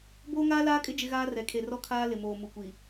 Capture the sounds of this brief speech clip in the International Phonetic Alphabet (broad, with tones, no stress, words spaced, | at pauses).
boː˦ŋaː˦laː˦kʼɪ˦ d͡ʒɪ˦ɣaː˦ rɛ˨kʰe˨rɔ˦kʰaː˦ lɪ˨moː˨ mu˨kʷi˨